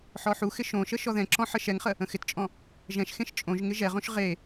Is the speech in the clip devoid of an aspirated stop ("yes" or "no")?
yes